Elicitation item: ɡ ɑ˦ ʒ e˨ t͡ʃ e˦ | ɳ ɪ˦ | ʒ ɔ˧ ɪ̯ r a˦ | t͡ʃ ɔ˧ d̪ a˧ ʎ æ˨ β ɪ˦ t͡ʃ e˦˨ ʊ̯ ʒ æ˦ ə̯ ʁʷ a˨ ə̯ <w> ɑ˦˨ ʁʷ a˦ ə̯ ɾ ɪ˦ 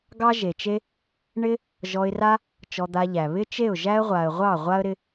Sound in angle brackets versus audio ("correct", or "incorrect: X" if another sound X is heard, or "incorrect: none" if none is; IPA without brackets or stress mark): incorrect: ʁʷ